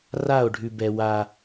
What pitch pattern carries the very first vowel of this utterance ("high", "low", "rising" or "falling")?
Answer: falling